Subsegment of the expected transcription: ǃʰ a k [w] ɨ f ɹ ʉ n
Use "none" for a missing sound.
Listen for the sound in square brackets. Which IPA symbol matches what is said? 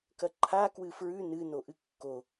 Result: w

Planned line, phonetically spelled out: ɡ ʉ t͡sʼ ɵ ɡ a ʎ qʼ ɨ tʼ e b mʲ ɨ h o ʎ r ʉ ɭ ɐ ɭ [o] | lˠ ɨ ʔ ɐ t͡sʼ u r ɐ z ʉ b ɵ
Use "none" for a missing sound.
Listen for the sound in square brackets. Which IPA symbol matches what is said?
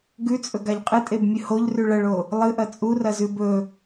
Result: o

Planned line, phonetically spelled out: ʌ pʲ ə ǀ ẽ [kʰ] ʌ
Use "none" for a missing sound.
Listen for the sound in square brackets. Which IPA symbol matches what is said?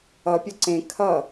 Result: kʰ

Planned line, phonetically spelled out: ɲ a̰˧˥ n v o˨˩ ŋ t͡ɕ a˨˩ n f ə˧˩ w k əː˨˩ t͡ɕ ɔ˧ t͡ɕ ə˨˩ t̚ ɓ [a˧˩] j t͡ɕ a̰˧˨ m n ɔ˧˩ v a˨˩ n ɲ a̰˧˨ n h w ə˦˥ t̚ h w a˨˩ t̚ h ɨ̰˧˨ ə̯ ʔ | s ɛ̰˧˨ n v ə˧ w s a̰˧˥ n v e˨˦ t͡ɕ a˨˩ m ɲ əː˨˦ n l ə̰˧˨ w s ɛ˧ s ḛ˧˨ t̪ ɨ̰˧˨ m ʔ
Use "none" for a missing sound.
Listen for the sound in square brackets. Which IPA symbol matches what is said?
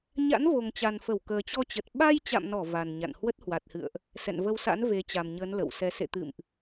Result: a˧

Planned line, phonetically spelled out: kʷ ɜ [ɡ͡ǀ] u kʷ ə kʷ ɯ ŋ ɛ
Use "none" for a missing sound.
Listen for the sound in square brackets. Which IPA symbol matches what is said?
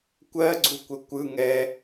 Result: ɡ͡ǀ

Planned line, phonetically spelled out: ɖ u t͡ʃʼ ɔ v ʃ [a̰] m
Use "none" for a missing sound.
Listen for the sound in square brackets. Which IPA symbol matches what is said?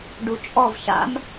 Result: a̰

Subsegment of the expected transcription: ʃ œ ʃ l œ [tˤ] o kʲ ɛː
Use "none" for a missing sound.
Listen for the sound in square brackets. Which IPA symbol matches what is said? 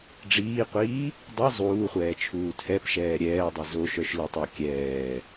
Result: tˤ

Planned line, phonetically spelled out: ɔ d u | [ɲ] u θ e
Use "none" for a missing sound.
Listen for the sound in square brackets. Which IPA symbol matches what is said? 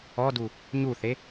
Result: ɲ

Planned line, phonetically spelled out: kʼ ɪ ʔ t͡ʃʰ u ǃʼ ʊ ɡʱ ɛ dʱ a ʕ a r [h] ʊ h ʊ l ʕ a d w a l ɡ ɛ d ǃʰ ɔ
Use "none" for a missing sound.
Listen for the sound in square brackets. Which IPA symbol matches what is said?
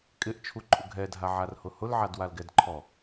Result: h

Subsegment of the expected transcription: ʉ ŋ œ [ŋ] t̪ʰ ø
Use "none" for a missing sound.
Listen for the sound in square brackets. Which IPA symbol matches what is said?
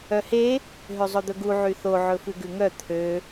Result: none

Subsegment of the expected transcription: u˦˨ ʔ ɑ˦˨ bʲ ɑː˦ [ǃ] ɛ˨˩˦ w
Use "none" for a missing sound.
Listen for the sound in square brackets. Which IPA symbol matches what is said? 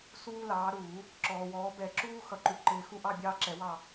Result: ǁ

